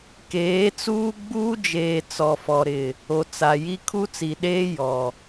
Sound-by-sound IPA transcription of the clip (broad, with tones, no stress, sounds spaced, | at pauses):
k eː˨˦ t͡s uː˦ ɡ͡b uː˦ d͡ʒ eː˨ t͡s ɔ˨ f ɔ˨ ɾ ɪ˨ | o˨ t͡s a˨ j i˦ kʰ u˦ t͡s i˨ ɗ eː˦ j ɔ˨